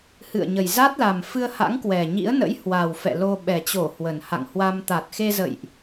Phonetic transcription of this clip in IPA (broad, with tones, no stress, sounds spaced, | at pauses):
h ɨ̰˧˨ ə̯ ɲ ə˨˩ j z a˦˥ t̚ l a˨˩ m f ɨ˧ ə̯ h a̰˧˥ ŋ k w ɛ˨˩ ɲ ḭ˧˥ ə̯ n ə̰˧˥ j h w a˨˩ w f ɛ̰˧˨ l o˧ ɓ ɛ˨˩ t͡ɕ o˧˩ h w ə˨˩ n h a̰˧˨ ŋ h w a˧ m t̪ a˨˩ t̚ x e˧ z ə̰˧˨ j ʔ